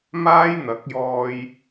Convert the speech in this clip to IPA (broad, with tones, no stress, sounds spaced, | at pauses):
m aː˥ j n̪ ɐ˨˥ k̚ j ɔː˧ j